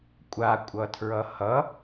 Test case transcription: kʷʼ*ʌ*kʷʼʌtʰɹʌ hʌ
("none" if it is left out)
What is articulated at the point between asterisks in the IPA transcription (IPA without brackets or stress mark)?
a